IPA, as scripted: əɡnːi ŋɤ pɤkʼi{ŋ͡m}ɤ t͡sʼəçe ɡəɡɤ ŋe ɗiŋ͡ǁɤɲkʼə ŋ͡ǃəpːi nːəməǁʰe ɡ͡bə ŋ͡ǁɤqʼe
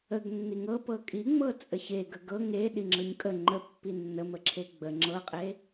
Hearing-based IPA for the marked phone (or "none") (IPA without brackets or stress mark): ŋ͡m